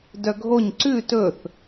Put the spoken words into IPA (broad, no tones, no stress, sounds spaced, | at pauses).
d œ ɡʱ o ɲ ǀ ʉ t ɵ θ